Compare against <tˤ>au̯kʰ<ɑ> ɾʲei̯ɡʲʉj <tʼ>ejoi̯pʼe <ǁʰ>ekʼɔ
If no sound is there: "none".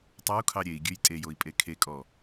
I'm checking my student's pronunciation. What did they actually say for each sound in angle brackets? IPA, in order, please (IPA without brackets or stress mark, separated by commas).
tˤ, ɑ, tʼ, kʰ